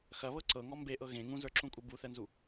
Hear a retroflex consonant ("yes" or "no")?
no